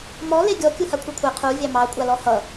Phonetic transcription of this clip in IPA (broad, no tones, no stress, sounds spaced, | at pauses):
m ɔ l e ɡʲ ɔ kʲ u h a kʷʰ e kʷʰ ɛ qʰ u vʲ ɑ m ɑ kʷʼ a l ɔ h ʌ